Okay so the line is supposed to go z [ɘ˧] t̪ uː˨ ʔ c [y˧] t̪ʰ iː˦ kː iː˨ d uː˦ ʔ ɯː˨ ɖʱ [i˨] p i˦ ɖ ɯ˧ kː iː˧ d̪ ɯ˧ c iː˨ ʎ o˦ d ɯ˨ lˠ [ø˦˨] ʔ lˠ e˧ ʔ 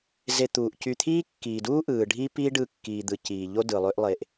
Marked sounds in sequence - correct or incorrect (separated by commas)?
incorrect, correct, incorrect, incorrect